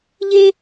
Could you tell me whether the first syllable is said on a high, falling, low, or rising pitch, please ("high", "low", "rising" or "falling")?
high